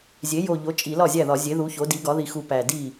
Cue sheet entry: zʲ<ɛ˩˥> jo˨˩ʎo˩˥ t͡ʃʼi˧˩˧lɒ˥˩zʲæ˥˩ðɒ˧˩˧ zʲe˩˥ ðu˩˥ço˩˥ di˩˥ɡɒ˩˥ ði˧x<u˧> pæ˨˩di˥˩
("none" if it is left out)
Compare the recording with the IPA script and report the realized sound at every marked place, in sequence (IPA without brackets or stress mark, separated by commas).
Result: e˩˥, u˧